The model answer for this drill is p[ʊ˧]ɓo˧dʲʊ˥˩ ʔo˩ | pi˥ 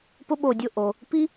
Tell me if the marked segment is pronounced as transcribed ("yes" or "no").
no